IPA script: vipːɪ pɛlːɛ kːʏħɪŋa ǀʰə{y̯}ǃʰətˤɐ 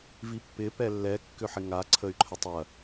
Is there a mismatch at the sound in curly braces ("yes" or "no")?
no